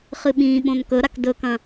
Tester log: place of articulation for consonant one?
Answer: uvular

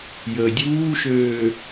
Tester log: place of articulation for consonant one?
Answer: palatal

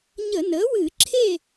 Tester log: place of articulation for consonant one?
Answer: palatal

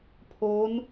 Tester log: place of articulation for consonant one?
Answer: labial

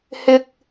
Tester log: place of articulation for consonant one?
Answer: glottal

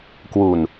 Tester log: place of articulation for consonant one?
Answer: velar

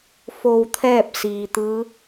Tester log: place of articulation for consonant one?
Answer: labial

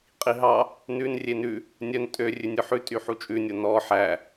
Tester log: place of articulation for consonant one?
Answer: uvular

